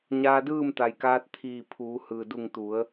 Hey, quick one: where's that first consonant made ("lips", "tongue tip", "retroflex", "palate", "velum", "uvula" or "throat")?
palate